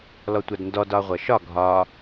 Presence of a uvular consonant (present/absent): present